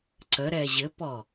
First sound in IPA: ǀ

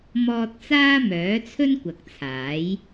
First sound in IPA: m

